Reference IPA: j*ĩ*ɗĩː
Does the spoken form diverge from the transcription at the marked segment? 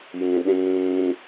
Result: no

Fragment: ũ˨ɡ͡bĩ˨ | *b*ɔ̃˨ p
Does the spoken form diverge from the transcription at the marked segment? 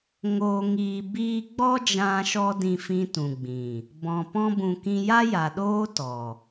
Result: no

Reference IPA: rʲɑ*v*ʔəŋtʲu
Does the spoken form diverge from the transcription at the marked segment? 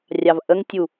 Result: no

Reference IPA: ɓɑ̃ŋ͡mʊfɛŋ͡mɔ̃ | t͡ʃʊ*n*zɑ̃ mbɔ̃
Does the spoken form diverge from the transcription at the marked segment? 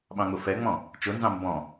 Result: no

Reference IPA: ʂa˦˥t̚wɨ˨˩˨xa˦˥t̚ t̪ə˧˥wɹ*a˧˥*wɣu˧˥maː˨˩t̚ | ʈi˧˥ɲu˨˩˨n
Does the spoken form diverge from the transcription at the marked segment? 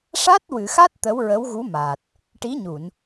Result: yes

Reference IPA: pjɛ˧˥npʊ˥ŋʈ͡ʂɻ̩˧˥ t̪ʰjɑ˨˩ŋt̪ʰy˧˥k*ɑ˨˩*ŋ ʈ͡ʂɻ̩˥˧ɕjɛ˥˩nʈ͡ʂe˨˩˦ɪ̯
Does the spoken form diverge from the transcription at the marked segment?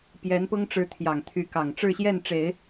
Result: no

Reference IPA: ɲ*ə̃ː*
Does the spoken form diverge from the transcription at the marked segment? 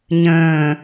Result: no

